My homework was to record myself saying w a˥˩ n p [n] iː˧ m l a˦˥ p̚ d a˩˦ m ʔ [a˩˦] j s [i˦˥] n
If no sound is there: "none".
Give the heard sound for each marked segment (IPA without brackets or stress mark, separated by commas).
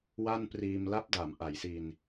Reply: r, a˩˦, i˧